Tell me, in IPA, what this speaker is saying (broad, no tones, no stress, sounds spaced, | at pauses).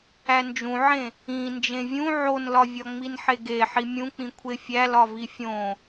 æ n d͡ʒ ũ ʕ ẽ | ĩ n d͡ʒ ẽ vʲ ũ ʕ o n l ɒ vʲ ɒ ŋ͡m i n ħ e ɡ e ħ i mʲ ũ k͡p ĩ kʷʰ e fʲ æ l ɒ v i fʲ õ